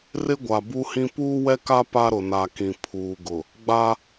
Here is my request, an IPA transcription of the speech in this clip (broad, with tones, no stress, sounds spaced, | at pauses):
r ɪ˦ ɡʷ a˨ b u˦ h ĩ˦ p uː˦ w ɛ˦ k a˦ p a˦ ɾ ʊ˨ n a˨ k ĩ˨ pʰ uː˨ ɡ ʊ˨ | ɡ͡b a˦